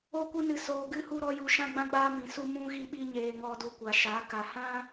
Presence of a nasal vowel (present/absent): present